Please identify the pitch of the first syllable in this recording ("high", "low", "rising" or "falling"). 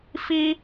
high